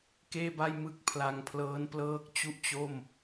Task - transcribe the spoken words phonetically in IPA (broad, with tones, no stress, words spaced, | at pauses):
keː˥˩ba˥˩j mɯ˥˩k̚ pʰla˧ŋpʰlɤː˦˥nplɤː˦˥k̚ t͡ɕu˥˩ʔt͡ɕo˥˩m